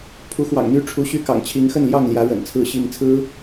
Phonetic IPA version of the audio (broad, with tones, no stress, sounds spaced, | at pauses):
pʰ u˨˦ x w ɑ̰˨˩ ŋ n̪ y˦ ʈ͡ʂʰ u˨˦ ɕ y˥˨ k ɑ̰˨˩ ŋ t͡ɕʰ i˨˦ ŋ x ə˥˨ n l j ɑ˥˨ ŋ l j ä˨˦ ɻ ə̰˨˩ n t͡sʰ ɹ̩˥˨ ɕ i˥˨ ŋ t͡sʰ ɹ̩˦